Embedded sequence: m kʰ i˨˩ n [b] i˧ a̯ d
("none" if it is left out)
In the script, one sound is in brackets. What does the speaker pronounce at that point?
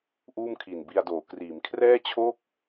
b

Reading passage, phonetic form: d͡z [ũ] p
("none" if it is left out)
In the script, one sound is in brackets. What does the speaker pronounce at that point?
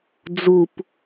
u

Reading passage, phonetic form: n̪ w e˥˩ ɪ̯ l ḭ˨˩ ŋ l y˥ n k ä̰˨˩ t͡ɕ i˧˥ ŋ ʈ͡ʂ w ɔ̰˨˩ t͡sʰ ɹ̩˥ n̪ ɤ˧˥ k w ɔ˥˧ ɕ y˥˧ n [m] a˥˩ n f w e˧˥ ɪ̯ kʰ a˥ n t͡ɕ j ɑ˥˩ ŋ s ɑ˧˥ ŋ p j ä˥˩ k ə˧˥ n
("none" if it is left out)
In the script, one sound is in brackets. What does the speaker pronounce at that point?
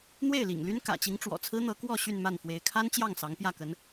m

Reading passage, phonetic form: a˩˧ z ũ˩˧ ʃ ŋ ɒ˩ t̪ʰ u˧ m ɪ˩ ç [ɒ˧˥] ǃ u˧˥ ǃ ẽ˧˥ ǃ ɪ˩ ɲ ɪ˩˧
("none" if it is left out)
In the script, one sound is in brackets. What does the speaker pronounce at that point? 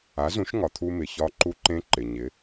ɒ˧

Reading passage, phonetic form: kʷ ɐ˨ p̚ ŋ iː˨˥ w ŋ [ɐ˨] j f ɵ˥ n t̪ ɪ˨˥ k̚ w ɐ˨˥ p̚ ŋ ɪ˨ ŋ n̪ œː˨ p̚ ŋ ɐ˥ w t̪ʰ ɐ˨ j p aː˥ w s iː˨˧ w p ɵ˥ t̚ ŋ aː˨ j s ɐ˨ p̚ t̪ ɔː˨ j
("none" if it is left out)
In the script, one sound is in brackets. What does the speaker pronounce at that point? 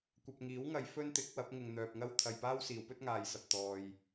ɐ˨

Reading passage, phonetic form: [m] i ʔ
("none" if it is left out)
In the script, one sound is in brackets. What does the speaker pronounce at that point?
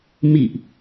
m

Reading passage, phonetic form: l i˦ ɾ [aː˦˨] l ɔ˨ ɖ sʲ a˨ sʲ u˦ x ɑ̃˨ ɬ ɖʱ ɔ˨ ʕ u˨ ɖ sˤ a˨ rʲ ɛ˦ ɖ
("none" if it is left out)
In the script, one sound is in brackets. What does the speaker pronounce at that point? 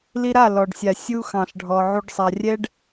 a˦˨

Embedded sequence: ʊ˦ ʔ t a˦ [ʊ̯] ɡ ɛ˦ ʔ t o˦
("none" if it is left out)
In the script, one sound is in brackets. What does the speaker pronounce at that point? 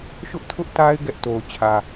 ɪ̯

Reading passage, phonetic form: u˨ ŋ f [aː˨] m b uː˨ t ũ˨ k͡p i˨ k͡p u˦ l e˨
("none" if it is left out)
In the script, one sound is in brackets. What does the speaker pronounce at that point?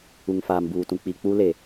aː˨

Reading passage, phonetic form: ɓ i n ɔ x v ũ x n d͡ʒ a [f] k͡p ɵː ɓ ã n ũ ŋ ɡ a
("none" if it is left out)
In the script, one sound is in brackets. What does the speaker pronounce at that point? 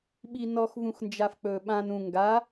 f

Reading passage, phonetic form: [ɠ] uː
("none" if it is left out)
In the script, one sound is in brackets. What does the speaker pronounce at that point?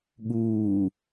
ɠ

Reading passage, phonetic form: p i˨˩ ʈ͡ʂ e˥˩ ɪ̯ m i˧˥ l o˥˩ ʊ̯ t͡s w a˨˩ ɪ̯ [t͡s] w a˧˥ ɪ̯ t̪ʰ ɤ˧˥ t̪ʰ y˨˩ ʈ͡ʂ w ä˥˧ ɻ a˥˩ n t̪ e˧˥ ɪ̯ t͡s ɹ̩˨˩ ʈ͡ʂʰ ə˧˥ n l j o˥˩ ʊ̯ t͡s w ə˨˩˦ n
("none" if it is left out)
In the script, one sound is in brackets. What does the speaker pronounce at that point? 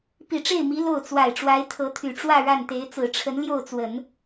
ʈ͡ʂ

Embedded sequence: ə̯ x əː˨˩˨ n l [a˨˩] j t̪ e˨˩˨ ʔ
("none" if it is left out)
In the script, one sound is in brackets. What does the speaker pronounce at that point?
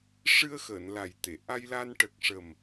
a˨˩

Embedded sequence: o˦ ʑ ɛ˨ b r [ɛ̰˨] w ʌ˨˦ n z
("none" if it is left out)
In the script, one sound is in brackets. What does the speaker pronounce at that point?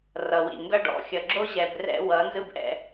ɛ̰˦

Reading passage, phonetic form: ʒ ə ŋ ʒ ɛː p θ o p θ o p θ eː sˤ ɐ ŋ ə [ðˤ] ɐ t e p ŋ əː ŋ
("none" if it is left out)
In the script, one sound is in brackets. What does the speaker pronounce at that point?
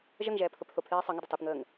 dˤ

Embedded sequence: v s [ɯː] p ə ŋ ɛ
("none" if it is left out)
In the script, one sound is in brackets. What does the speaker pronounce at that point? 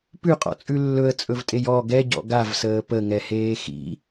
əː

